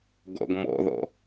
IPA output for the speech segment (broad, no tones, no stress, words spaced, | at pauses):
ɡɔ̰ɡmɔ̰ðɔ̰